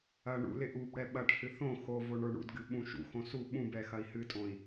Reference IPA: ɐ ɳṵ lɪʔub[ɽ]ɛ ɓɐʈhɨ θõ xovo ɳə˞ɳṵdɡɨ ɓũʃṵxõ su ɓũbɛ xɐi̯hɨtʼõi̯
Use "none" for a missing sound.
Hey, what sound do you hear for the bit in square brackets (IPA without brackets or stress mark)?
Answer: ɽ